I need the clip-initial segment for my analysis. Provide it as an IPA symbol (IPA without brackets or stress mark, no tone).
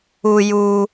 u